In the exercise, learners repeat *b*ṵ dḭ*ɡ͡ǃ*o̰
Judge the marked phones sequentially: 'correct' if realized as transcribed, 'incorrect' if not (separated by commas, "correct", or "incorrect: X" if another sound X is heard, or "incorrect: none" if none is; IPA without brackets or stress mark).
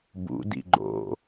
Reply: correct, correct